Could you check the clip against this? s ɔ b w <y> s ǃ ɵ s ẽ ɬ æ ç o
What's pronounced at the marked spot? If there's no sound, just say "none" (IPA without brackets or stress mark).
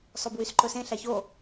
y